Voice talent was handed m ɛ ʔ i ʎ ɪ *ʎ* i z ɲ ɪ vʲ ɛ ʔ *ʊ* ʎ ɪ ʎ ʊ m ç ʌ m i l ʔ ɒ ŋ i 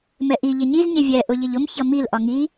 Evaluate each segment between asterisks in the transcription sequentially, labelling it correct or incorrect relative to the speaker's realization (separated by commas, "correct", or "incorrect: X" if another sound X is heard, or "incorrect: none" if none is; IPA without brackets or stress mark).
incorrect: ɲ, correct